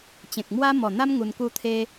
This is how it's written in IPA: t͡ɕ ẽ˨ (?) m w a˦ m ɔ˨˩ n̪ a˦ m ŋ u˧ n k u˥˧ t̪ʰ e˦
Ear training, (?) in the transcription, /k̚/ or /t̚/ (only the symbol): k̚